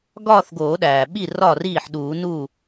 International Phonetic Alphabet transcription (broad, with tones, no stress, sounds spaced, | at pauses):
ɡ ɒː˥˧ θ ɡ oː˨˩˦ ɗ æː˩ ɓ i˥˩ r ɒ˧˩ r iː˥˩ ħ ɗ uː˨˩˦ n uː˥˩